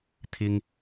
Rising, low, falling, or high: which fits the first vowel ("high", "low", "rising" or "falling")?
low